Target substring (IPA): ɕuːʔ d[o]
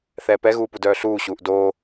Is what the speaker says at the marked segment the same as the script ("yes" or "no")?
no